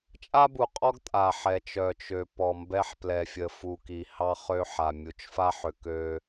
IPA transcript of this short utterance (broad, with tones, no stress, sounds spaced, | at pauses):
t͡ʃʼ a˦ b u˨ qʼ ɔ˦ ɡ tʼ a˨ ħ ɛ˨ t͡ʃ œ˨ t͡ʃ ø˨ p ɔ˨ m b ɛ˦ ħ p l ɛ˨ fʲ ə˨ f u˨ k i˨ h ɑ˦ χ ø˦ ħ a˨ mʲ u˨ t͡ʃ f a˦ ħ ø˨ k ø˦